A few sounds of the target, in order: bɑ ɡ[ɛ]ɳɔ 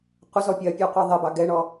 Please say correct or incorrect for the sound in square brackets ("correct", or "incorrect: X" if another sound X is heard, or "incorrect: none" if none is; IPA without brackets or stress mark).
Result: correct